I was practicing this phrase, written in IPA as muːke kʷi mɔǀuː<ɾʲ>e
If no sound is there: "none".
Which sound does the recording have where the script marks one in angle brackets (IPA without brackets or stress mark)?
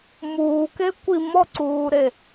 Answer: ɾ